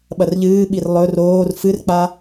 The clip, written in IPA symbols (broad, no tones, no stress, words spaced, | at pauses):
ɓɐrʎɨːɓir lˠɵr oːr fɨrk͡pa